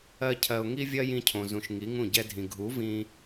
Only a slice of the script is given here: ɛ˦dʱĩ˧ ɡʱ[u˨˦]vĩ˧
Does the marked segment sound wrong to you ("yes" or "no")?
no